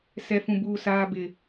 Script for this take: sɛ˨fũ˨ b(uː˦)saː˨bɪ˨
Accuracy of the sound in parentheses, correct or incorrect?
incorrect